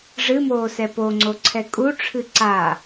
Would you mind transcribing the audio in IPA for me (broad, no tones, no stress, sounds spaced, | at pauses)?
ʐ ɨ m oː s ɛ p o ŋ͡ǀ o ǀʰ ɛ kʼ u ʈ͡ʂʰ ɨ ǀ a